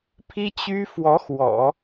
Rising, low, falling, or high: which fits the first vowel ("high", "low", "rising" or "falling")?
high